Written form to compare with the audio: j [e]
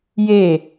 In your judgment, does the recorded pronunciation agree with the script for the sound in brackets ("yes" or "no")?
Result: yes